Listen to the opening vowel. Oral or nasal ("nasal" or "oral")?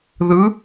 oral